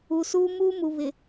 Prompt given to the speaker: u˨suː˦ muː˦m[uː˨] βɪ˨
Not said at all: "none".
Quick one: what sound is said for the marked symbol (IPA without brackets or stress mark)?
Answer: u˨